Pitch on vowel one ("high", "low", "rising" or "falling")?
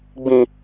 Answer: high